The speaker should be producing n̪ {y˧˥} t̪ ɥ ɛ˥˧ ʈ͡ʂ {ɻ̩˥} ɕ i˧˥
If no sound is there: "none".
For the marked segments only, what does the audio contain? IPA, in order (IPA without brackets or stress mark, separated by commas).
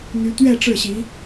y˧˥, ɻ̩˥˩